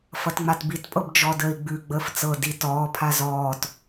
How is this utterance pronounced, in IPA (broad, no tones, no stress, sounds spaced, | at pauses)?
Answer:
f ʌ t ŋ͡m a t b i t pʼ ɤ b d͡ʒ ɔ d əː i̯ ɡ͡b ʉ ɡ͡b əː f t͡s ɤ d i t ɔː pʰ a z ɔː t